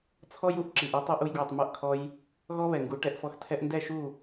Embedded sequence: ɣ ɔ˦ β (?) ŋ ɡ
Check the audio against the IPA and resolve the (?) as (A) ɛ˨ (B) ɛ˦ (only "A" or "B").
A